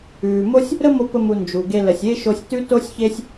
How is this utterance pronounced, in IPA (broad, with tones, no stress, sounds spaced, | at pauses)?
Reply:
ʉː˩ m o˥ sʲ | ɾ ə˥ m o˧ p ə˧ m u˩ n d͡ʒ u˩ ɡ e˧ l ə˩ sʲ e˥ ʃ o˧ sʲ t ʉ˥ t o˥ sʲ ç e˥ sʲ